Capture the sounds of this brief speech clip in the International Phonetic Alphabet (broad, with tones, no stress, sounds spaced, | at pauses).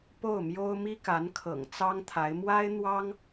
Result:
p o˥˩ ʊ̯ m j o˥ ʊ̯ m i˥ k a˧˥ n kʰ ɤ̰˨˩ ŋ t͡s ɑ˥ ŋ t̪ʰ a˧˥ ɪ̯ m w a˥ ɪ̯ n̪ w ɑ˥ ŋ